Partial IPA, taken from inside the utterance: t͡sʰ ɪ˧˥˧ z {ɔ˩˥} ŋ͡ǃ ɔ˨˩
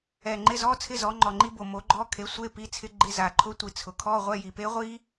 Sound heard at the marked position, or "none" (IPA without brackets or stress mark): ɔ˩˥